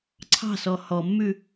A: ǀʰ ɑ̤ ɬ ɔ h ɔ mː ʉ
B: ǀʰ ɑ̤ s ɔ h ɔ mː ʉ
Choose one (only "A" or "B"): B